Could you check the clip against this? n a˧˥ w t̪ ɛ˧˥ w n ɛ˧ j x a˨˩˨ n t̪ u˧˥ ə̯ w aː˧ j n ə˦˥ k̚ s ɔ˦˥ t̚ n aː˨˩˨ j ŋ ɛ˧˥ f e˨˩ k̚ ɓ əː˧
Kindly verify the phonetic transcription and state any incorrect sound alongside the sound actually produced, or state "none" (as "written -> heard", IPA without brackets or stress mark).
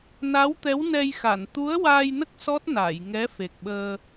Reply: none